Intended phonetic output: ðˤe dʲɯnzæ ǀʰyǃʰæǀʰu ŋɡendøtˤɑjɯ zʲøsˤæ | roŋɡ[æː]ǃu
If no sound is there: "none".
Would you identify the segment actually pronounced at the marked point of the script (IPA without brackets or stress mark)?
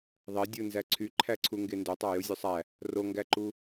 æ